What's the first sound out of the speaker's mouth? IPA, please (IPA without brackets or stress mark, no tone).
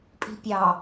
pʼ